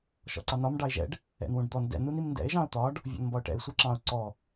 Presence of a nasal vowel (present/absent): present